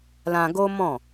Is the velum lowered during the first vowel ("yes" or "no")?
yes